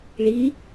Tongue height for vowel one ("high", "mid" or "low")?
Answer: high